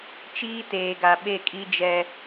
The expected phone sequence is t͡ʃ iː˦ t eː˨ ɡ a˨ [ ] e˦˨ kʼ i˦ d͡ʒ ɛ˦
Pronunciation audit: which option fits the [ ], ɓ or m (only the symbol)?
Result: ɓ